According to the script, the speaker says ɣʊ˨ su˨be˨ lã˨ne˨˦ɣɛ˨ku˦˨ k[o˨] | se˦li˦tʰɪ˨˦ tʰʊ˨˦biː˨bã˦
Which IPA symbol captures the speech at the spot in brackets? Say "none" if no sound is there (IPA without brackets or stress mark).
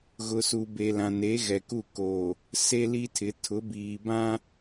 o˨